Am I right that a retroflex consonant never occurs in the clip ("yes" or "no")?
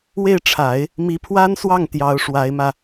no